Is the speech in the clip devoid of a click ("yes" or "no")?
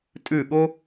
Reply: yes